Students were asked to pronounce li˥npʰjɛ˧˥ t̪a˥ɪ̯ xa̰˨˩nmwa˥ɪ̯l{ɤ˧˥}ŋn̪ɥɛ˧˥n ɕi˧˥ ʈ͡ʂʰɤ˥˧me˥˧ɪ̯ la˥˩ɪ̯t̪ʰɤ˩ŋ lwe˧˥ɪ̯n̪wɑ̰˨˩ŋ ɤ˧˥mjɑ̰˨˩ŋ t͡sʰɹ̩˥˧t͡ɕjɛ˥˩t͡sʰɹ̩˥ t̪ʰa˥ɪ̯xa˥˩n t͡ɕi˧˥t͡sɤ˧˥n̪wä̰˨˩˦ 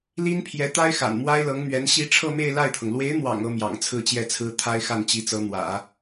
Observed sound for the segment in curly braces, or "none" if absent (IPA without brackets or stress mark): ɤ˧˥